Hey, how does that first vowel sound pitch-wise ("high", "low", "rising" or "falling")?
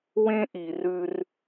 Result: high